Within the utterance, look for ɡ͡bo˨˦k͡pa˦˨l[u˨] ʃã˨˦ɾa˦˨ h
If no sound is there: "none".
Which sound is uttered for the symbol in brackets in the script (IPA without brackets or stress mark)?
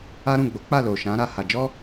o˨